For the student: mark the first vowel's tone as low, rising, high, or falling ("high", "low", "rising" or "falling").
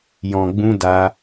low